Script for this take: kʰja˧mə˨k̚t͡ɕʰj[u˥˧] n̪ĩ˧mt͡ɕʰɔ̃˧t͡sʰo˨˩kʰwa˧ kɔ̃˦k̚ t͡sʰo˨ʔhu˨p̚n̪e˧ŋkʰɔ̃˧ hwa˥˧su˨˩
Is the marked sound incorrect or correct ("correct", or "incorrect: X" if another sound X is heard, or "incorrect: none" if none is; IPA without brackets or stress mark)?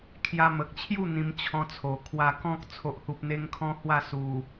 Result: correct